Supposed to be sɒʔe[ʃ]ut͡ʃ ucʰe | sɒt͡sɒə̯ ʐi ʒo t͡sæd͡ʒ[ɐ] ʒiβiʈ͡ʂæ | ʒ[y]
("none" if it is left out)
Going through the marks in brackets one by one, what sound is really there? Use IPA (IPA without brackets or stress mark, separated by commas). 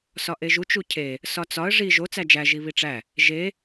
ʒ, æ, e